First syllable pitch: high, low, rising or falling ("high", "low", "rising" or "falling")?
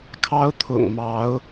high